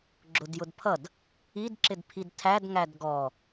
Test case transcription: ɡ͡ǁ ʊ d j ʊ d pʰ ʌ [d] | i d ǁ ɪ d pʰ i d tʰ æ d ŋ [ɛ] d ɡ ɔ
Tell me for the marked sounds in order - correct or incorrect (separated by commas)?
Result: correct, incorrect